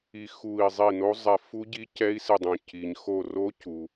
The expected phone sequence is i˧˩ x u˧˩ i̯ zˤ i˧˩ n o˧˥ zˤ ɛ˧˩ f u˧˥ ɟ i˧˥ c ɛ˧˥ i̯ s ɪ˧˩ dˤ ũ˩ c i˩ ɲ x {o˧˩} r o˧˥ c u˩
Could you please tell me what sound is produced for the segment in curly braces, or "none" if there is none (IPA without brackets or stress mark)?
o˧˩